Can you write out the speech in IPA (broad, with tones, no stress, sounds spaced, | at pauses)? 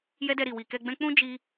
j ɛ˦ d ɛ˧ ɾ i˨ w i˨ k ɛ˧ ɡ͡b ɛ̃˦ k͡p ũ˦ d͡ʒ i˧